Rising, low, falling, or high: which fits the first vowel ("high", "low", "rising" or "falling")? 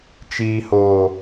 low